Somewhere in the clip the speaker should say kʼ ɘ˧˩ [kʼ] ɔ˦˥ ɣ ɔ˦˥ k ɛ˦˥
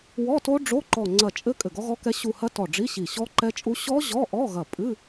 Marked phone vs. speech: incorrect: ɡ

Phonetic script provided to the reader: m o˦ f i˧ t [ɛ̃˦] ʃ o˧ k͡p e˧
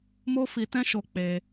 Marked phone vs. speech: correct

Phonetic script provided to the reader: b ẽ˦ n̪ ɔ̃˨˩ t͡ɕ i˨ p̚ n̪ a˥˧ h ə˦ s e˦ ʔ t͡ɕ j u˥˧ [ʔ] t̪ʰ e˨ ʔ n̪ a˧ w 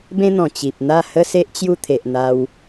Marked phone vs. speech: incorrect: none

